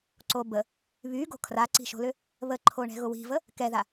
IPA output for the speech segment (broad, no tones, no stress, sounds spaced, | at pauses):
ǀ o b ə | β y ɡ o̤ kʰ r a ǀ i̤ ʃ o̤ l ʏ | β ə ǃʰ o ɳ ɛ̤ ɣ ʊ w i̤ v ə | k ɛ ð a